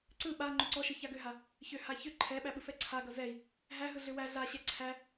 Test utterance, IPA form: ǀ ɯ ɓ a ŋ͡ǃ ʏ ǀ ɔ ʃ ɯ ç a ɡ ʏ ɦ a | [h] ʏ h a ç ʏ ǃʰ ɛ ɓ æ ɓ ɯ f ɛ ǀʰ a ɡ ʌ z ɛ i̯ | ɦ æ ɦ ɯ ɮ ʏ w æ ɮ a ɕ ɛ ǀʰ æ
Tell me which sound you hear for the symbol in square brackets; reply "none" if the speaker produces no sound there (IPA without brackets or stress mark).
ç